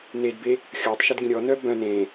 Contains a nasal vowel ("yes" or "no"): yes